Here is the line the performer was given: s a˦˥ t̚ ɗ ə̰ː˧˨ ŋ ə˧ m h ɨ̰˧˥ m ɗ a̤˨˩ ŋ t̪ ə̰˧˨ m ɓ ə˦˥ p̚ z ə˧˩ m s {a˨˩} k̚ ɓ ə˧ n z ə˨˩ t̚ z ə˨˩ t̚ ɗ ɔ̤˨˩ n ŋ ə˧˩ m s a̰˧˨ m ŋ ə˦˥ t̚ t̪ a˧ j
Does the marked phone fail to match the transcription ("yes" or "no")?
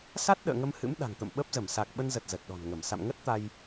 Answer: no